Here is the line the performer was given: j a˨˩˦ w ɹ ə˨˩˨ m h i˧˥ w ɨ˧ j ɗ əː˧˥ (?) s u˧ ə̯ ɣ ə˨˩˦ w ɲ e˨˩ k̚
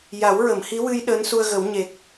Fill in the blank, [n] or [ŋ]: n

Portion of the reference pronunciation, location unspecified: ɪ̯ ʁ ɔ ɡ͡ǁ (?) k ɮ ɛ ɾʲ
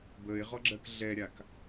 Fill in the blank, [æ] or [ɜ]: ɜ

